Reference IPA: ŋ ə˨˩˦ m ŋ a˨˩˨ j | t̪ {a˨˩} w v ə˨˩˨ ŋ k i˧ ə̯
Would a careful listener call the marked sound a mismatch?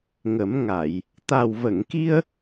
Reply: no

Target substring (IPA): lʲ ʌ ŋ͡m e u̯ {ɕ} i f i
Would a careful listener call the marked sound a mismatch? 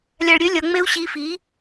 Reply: no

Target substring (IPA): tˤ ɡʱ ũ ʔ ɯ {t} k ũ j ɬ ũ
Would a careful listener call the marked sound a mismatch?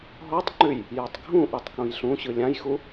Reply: yes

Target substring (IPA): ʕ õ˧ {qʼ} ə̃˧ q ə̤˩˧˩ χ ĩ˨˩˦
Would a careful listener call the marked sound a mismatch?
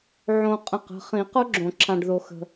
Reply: no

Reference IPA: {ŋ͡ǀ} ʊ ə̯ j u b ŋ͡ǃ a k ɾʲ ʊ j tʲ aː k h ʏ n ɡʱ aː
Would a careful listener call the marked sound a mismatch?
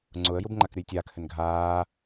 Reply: no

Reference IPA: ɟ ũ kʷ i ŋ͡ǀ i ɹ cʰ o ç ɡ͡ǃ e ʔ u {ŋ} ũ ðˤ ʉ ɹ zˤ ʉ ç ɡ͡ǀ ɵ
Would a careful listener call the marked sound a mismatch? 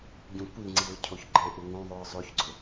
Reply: no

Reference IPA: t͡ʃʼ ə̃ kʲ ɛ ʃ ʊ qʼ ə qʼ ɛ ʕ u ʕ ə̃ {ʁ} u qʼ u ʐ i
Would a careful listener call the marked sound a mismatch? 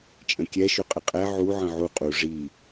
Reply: yes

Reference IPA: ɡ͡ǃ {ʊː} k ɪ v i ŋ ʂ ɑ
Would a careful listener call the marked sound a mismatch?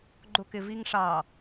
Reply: yes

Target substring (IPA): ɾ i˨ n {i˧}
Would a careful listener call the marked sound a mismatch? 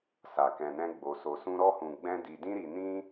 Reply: yes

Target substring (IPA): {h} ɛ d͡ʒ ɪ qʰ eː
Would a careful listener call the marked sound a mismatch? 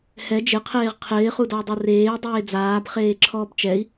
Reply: no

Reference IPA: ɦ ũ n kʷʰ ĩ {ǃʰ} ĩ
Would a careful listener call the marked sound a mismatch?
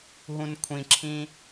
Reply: yes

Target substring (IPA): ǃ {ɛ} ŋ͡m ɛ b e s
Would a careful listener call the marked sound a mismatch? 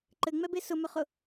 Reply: yes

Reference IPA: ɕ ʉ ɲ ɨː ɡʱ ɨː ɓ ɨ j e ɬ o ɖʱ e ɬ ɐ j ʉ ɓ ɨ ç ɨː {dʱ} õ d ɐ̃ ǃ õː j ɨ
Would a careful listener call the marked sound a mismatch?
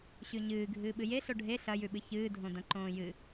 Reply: no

